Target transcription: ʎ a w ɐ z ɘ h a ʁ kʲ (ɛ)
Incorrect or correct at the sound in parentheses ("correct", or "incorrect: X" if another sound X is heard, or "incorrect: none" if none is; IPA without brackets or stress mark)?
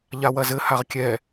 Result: correct